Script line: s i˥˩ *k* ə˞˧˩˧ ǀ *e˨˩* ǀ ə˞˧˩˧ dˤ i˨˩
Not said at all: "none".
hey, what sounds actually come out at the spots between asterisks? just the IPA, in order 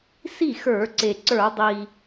x, e˨˩

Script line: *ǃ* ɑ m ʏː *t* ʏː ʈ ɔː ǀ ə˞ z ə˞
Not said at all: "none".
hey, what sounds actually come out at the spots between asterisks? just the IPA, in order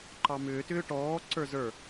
ǃ, t

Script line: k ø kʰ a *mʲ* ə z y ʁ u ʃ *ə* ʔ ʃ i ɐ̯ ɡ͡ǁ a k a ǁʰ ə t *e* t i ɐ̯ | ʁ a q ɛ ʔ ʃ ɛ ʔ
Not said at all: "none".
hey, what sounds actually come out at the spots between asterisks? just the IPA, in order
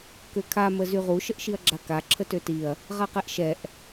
m, ə, ø

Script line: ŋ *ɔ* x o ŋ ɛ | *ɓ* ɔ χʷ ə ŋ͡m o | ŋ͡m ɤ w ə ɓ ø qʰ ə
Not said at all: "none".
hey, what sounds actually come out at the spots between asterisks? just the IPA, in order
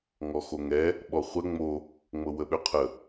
ɔ, ɓ

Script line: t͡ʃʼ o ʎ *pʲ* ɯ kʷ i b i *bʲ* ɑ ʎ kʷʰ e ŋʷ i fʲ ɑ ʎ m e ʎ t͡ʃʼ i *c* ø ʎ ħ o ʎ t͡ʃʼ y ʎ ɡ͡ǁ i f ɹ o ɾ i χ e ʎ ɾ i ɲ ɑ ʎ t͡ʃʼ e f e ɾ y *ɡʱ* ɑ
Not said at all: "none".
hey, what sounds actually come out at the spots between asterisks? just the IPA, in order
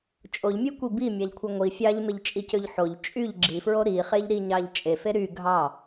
mʲ, mʲ, c, ɡʱ

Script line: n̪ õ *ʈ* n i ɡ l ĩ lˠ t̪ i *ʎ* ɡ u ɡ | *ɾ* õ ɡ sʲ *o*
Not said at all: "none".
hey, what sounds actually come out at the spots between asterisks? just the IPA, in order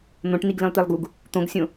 ʈ, lˠ, t̪, õ

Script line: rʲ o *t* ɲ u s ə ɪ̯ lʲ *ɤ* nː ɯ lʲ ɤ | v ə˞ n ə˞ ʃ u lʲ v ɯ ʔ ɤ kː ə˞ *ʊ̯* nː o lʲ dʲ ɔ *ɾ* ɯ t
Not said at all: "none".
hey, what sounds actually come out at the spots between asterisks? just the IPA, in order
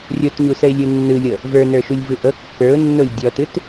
t, ɯ, ʊ̯, t

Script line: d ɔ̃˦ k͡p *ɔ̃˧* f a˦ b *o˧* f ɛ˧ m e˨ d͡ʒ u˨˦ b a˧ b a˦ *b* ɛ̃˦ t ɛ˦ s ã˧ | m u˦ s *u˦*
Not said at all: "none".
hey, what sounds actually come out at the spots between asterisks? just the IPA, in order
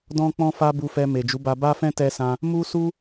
ɔ̃˦, u˧, f, u˦

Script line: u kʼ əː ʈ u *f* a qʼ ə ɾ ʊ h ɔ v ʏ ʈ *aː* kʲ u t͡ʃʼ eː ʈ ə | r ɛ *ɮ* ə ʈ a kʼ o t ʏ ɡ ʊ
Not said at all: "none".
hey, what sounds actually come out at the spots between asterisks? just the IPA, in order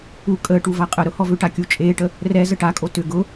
v, a, z

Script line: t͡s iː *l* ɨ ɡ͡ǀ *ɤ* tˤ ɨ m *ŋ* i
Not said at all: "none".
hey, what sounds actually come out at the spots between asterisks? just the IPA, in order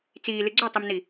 l, ɵ, n

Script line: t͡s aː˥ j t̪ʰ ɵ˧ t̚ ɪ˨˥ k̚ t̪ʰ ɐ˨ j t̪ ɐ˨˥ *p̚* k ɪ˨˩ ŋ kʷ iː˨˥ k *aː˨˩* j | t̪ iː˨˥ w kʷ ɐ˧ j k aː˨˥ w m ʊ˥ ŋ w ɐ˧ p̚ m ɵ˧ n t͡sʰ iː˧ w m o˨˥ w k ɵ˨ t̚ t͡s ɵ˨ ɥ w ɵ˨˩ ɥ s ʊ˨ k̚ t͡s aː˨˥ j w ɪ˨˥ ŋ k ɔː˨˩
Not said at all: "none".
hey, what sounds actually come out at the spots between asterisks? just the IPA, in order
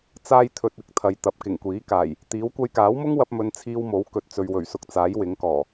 p̚, aː˨˩

